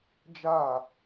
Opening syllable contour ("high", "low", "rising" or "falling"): falling